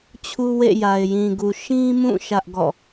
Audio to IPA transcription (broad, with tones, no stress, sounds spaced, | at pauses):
t͡ɕʰ u˦ w ḛ˦˨ j a˨ ɪ̯ j ĩ˨ ɡ u˨ ʃ ĩ˦ m ũ˦˨ ʃ ä˦ ʔ ɡ ɔ̰˦˨